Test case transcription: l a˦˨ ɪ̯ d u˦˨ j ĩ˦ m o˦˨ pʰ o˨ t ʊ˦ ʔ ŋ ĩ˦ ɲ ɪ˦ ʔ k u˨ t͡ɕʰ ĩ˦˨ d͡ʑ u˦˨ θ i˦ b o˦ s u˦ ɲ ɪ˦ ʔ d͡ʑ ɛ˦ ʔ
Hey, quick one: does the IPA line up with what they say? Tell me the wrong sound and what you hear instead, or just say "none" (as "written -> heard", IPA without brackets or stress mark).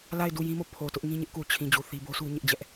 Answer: none